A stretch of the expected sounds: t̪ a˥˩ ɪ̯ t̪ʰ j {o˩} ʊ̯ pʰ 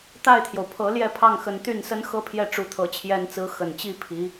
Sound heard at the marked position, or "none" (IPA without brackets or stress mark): o˩